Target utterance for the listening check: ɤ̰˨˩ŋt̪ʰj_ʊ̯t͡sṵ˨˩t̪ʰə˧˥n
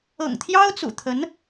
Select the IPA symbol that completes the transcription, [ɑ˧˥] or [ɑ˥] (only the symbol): ɑ˥